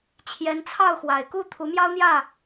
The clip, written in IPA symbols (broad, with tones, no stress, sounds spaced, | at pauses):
t͡ɕʰ j ɛ˨˦ n t͡sʰ ɑ˥˨ ʊ̯ x w a˨˩ ɪ̯ k u˥˨ t̪ʰ u˨˦ m j ɑ˦ ʊ̯ n̪ j ä˥˨